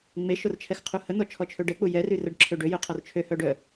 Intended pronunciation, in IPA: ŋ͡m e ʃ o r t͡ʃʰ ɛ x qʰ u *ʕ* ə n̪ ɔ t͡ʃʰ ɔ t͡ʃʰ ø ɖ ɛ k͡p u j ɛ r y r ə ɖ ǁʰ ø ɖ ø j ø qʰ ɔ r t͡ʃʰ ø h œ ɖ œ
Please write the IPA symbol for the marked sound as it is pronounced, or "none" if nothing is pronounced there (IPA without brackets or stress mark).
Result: h